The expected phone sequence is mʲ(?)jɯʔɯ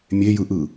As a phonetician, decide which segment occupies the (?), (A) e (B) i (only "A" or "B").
A